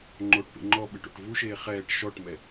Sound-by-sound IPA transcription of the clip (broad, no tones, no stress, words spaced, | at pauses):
ŋ͡ǃoʈpḛ ŋ͡ǃɔɓɨʈ o̰ʈvuʃeː χɛːʈ ʃɔʈmɛ